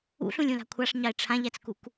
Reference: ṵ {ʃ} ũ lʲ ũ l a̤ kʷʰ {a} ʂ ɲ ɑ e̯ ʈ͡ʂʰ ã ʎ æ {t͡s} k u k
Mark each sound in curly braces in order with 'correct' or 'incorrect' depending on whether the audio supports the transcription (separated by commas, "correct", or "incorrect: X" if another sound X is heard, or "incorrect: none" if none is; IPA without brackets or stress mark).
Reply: incorrect: ɬ, correct, correct